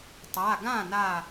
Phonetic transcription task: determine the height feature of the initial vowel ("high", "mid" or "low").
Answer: low